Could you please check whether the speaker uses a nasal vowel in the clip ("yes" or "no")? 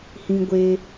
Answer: yes